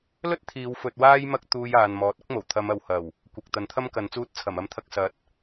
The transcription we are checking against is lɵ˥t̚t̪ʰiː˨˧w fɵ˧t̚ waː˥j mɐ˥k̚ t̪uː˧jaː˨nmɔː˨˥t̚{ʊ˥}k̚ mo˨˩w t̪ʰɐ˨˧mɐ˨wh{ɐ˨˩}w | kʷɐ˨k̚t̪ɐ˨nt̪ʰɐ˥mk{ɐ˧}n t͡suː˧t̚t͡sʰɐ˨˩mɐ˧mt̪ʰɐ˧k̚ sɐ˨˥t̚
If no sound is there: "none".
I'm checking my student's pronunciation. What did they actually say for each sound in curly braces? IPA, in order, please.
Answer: ʊ˥, ɐ˨˩, ɐ˨˧

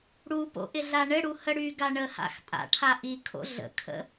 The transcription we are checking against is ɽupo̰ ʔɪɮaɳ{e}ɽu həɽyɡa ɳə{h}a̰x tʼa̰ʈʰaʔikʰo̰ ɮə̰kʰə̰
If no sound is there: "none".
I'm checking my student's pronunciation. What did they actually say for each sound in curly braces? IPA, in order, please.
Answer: ɘ, h

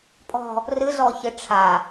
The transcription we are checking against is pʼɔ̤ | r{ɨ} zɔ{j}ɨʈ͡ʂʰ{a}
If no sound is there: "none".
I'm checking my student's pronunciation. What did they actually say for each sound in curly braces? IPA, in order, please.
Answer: ɨ, ç, a

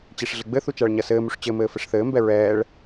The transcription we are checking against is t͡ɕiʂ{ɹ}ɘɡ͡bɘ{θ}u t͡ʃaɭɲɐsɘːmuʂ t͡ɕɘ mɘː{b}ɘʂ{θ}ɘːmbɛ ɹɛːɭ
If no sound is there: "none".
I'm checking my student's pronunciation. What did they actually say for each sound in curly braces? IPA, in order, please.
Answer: ɮ, θ, f, θ

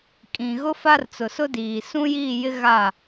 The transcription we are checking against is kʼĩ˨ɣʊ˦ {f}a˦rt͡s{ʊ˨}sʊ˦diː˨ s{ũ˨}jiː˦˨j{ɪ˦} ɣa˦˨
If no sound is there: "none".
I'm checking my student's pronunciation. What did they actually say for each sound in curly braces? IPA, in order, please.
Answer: f, ʊ˨, ũ˦, ɪ˦

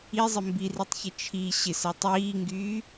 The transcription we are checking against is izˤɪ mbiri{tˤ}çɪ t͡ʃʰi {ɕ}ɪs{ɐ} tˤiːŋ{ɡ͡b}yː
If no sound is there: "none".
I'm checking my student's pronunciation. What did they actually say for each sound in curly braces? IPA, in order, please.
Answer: tˤ, ɕ, ɐ, ɡ

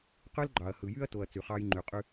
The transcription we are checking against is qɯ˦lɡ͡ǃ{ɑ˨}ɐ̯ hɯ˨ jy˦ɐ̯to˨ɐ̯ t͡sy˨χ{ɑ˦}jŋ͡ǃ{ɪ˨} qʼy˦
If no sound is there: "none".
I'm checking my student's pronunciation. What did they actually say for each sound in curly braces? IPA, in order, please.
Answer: ɑ˨, ɑ˦, y˨

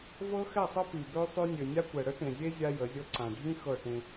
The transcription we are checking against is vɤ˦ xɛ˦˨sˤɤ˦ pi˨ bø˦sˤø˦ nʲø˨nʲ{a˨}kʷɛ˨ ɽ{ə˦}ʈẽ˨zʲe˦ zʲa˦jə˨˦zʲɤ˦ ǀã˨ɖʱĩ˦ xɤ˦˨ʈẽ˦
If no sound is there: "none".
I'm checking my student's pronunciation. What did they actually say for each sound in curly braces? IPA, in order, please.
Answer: a˦, ə˦

